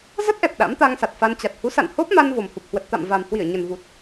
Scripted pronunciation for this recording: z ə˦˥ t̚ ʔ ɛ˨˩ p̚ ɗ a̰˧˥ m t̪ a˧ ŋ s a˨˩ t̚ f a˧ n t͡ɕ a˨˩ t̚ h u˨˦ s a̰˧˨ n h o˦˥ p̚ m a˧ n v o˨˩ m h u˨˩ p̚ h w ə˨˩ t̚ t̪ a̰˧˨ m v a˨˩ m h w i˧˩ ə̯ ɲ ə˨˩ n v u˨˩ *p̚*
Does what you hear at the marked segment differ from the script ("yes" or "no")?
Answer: yes